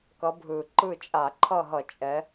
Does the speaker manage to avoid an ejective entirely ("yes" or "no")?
no